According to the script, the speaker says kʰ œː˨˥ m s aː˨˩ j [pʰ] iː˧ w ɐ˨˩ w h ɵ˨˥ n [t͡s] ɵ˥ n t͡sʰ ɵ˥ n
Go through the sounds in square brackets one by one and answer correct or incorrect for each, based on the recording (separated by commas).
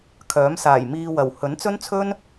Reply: incorrect, correct